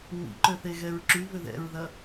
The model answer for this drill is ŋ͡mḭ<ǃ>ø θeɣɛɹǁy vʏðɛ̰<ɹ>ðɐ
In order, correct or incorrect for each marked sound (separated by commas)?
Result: correct, correct